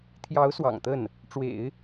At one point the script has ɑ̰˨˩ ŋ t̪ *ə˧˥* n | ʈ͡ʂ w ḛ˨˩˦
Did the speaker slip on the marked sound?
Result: yes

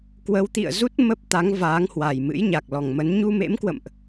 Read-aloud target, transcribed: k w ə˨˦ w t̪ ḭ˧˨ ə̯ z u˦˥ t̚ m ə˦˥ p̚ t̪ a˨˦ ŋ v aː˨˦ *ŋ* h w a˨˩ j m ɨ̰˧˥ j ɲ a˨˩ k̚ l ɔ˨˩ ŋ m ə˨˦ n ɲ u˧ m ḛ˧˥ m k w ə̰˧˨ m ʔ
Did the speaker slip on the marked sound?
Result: no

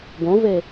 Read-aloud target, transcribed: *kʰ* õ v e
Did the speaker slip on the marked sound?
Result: yes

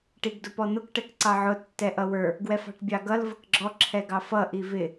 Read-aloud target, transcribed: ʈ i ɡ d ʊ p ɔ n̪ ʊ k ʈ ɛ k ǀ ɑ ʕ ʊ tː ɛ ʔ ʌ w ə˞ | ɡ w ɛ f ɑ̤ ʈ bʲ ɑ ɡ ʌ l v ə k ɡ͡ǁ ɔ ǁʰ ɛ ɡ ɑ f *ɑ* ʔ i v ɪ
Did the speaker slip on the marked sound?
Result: yes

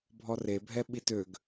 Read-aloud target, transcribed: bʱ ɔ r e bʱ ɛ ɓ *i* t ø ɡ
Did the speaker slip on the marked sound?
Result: no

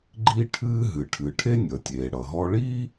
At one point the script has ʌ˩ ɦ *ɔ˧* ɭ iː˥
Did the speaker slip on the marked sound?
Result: no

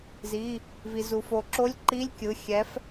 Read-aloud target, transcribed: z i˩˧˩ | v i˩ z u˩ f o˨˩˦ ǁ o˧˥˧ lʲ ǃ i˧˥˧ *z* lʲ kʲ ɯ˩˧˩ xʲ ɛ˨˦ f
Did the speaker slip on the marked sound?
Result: yes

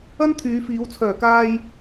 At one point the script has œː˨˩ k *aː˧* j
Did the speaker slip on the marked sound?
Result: no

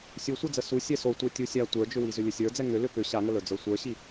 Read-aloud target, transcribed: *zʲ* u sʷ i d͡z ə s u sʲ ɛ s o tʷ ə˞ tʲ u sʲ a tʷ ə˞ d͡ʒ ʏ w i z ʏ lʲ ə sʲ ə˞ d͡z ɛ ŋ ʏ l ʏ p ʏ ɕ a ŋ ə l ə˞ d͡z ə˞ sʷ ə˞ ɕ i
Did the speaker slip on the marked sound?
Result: yes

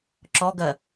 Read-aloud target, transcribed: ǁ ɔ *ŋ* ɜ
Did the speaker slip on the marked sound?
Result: yes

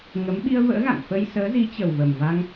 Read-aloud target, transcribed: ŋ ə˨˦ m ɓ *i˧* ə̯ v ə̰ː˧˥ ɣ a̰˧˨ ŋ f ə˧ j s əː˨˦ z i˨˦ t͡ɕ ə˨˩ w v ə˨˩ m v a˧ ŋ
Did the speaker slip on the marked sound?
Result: no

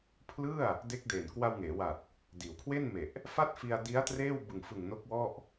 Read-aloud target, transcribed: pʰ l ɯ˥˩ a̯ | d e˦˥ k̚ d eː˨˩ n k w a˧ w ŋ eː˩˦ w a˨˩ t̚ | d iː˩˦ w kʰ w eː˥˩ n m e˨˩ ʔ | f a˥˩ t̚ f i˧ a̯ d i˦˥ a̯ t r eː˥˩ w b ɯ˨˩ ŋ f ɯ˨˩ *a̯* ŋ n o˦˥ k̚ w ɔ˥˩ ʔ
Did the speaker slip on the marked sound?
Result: yes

